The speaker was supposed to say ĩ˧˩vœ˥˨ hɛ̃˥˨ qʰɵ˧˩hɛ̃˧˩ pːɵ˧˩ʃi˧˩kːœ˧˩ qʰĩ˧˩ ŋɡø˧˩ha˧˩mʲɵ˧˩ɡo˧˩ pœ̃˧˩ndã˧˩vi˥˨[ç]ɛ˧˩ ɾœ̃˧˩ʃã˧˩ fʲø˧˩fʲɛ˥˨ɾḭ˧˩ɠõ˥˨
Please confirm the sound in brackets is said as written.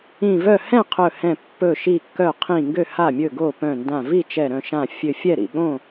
no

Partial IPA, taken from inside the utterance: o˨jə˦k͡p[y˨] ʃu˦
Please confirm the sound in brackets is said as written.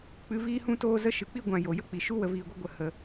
no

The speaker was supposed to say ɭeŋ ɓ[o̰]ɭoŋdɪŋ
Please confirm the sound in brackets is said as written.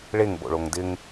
yes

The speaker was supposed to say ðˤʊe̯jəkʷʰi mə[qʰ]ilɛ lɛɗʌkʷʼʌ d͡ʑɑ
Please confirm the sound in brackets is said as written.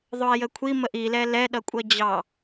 no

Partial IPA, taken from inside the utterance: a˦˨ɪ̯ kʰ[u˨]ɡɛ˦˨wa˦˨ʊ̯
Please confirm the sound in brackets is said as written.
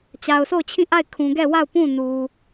no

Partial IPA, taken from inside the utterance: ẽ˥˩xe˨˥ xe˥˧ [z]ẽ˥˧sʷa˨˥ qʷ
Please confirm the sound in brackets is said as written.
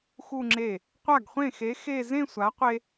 yes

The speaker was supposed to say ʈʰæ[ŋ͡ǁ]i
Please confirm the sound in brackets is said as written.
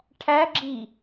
no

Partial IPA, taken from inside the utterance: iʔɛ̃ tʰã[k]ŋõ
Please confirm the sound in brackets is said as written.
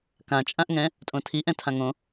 no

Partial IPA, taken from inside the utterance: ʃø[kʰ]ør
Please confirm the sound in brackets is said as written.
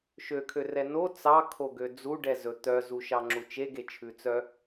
yes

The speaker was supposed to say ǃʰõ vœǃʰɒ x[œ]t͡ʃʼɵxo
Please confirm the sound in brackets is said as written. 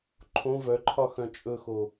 no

